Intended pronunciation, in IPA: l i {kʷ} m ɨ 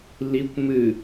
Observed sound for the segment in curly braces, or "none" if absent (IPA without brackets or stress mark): kʷ